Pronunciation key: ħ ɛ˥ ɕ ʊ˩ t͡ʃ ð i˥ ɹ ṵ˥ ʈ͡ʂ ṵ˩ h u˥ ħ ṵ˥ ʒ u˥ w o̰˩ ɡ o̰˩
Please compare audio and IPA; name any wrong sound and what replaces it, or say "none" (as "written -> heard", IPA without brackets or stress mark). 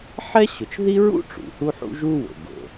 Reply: none